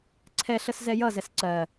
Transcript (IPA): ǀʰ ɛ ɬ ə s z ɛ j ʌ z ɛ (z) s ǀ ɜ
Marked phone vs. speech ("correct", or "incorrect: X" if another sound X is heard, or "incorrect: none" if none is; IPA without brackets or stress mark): incorrect: none